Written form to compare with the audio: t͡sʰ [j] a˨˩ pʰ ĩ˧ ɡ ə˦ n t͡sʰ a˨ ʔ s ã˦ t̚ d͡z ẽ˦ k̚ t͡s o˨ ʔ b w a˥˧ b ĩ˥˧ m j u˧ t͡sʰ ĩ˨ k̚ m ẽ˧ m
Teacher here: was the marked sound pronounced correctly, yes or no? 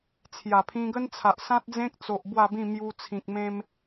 yes